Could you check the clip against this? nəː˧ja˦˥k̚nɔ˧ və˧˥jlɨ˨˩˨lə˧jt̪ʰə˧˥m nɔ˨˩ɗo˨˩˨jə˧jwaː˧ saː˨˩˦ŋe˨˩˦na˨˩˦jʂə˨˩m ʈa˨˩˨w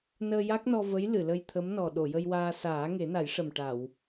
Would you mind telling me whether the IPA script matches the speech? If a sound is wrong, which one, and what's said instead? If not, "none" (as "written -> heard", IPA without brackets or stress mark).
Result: none